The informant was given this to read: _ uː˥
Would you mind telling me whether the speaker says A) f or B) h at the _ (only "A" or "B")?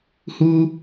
B